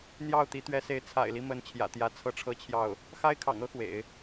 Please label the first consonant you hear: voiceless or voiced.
voiced